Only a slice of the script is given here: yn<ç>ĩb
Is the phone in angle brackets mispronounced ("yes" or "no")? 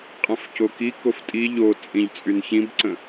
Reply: no